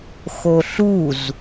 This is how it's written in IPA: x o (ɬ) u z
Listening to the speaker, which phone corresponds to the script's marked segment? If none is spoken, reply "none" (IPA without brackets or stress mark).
ɬ